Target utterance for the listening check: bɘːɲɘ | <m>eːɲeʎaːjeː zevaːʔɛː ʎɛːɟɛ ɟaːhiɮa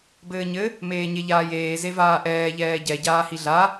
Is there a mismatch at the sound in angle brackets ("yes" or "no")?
no